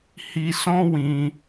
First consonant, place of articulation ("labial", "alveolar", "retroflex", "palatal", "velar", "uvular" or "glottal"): glottal